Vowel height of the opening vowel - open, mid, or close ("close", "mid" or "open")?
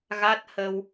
open